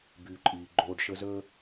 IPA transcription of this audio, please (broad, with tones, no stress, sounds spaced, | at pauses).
b yː˨ ǃʼ iː˨ ɡ͡ǃ oː˧ ɖ ʃ ə˧ z ə˦